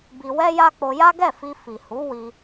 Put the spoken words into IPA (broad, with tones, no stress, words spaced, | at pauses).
bi˧wɛ˦ja˦ k͡po˧ja˦ɡɛ˦˨ fi˧fi˨ hu˨˦ wi˧